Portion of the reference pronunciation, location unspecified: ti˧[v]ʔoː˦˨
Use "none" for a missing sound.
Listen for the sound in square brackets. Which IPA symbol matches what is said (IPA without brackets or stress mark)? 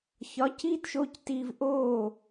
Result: v